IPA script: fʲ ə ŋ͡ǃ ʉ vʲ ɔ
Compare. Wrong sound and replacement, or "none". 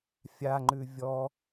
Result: ə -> a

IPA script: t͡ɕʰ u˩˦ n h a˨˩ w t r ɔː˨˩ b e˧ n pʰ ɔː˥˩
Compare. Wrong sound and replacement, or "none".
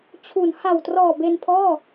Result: none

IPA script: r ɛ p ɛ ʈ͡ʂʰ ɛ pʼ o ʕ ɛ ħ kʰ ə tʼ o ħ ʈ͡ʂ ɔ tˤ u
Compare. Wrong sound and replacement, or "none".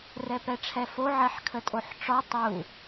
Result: pʼ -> f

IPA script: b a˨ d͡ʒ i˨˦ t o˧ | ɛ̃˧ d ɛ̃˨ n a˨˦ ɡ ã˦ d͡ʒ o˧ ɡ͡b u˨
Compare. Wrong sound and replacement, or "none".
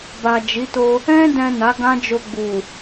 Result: none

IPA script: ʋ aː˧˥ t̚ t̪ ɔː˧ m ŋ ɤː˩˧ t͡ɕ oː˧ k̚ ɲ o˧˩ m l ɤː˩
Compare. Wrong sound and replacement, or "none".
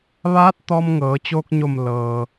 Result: none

